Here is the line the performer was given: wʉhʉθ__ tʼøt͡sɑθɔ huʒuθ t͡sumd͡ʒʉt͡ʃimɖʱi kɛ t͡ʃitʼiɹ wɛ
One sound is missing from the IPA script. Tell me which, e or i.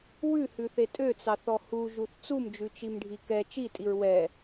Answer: e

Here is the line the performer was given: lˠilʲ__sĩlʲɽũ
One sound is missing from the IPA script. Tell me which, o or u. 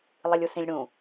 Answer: u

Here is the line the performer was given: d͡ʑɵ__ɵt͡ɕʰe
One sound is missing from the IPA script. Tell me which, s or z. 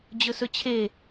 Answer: s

